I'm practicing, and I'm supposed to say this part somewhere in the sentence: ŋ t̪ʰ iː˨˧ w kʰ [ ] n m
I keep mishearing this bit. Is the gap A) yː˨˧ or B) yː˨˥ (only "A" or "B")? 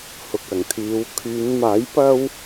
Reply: A